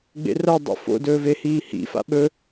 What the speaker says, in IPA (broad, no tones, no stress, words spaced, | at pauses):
ɡ͡bḛrɐ dˤṵfo̰ dɵːvehiːhḭ fa̰ɓɵ